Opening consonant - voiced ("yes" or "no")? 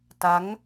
no